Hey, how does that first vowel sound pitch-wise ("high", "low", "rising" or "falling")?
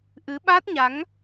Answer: rising